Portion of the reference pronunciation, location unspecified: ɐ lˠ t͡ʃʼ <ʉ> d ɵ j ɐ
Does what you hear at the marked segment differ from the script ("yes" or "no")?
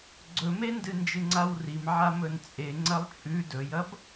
no